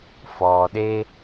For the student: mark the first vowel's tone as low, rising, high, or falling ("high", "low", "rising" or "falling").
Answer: low